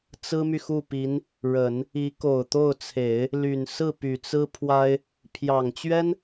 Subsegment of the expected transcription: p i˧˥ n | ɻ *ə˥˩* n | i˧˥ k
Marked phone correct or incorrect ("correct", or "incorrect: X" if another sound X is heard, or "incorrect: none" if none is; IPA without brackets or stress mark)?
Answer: incorrect: ə˨˩˦